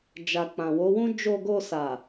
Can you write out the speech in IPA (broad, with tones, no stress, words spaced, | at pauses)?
d͡ʒa˨ k͡pã˨wo˨˦wũ˦ d͡ʒo˧ɡo˧sa˨